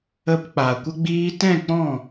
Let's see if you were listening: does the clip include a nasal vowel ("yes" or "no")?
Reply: yes